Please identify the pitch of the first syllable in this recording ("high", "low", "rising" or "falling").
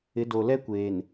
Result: rising